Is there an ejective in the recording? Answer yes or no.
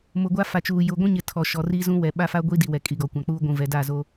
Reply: yes